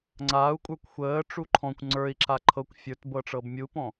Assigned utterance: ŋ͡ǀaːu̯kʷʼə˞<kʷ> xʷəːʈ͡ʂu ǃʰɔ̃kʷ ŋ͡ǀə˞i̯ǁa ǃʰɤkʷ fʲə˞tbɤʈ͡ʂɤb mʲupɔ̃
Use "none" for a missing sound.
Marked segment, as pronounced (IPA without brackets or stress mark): kʷ